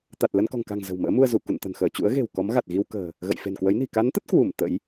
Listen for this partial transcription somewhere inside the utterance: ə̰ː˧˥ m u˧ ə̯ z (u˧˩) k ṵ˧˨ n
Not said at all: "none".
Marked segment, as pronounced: u˧˩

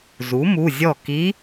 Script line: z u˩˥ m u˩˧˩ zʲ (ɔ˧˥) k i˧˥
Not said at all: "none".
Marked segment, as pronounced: ɔ˥˩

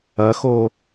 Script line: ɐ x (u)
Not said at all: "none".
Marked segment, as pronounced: o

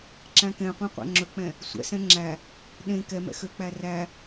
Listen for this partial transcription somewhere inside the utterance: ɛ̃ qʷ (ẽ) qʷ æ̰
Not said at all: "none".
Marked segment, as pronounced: ẽ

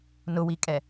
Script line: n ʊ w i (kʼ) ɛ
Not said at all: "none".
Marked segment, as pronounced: kʼ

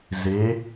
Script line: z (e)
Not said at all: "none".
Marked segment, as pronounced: e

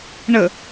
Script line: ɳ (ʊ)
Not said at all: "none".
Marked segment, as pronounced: ə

